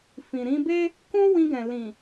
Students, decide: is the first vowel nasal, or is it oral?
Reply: nasal